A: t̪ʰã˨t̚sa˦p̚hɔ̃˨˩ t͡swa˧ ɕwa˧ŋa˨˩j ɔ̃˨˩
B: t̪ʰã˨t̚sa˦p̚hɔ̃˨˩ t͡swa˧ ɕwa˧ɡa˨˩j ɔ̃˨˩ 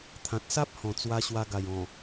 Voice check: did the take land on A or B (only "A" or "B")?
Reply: B